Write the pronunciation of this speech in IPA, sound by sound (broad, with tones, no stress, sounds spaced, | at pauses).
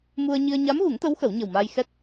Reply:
m u˧ ə̯ ɲ i˧ ə̯ ɲ a˧˥ m ɣ u˨˩˦ ŋ t̪ ə˧˥ w x ə˨˩˦ w ɲ ə˨˩ w m aː˧ j x ɛ˦˥ t̚